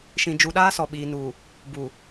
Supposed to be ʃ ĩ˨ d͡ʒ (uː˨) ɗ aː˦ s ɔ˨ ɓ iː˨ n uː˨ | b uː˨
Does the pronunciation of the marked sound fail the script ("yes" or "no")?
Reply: yes